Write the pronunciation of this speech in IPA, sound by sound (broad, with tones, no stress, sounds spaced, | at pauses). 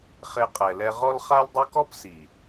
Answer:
χ e˦ qʼ ɛ˧ l ɛ˦ ʁ ɔ˦ l χ a˦ l dˤ e˦ k ɔ˦ p s i˨